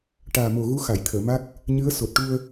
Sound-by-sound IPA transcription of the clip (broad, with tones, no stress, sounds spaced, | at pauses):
ʈ aː˨˩ m o˨˩ ɣ u˧˥ x a˨˩˨ j t̪ʰ əː˨˩˨ m a˦˥ k̚ | ɲ ɨ˧˥ ə̯ s o˨˩ t̚ ʈ u˧ ə̯